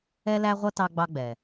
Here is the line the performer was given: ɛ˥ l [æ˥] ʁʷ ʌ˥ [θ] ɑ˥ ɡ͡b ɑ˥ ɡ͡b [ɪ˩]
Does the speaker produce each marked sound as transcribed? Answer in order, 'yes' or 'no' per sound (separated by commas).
yes, no, no